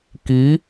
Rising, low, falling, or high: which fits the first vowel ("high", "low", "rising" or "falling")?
rising